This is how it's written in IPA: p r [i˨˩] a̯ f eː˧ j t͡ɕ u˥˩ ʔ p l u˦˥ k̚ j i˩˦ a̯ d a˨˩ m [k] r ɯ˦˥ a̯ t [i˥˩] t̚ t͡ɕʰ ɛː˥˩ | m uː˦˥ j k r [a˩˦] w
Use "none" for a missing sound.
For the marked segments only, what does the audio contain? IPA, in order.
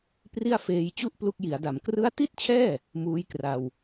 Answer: i˥˩, k, i˥˩, a˧

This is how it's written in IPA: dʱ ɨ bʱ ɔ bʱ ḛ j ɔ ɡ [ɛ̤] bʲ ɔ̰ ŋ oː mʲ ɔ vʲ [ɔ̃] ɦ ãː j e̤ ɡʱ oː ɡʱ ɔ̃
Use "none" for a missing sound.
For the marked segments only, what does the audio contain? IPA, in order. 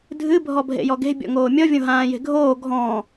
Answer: e̤, õ

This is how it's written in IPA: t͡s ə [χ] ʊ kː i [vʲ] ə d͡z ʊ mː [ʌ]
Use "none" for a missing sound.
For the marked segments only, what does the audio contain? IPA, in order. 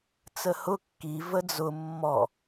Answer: h, v, ɔ

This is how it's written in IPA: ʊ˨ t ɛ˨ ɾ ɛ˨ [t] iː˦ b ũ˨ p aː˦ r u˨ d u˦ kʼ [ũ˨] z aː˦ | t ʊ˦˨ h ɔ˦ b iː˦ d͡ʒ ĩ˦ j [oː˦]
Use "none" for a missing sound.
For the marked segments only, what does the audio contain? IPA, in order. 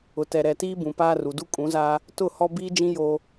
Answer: t, ũ˨˦, oː˦

